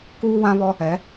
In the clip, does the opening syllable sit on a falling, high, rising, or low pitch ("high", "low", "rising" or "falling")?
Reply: high